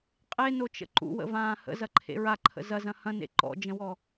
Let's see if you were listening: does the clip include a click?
yes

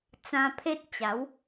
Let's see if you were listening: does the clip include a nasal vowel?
yes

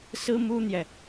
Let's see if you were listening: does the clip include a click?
no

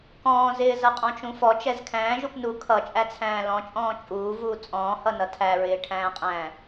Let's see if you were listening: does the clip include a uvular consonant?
yes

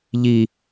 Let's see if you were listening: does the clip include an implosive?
no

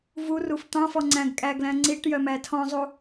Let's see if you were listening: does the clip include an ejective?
yes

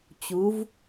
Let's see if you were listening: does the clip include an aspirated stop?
no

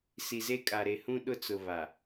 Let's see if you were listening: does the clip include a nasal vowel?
yes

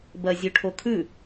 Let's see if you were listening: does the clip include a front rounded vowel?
no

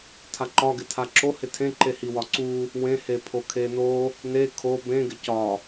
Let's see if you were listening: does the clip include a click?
yes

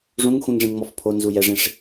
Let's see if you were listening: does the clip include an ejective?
no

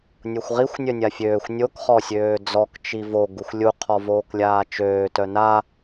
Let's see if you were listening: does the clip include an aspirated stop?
yes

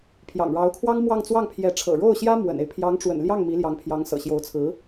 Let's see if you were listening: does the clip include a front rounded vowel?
no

